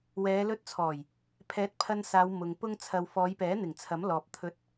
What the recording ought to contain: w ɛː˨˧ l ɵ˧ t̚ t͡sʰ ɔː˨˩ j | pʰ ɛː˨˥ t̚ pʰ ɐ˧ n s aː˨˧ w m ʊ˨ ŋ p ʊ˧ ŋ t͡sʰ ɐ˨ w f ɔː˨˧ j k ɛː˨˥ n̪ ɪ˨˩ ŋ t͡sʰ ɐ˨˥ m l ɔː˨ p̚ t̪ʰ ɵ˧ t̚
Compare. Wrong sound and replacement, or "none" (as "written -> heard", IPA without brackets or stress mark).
k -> p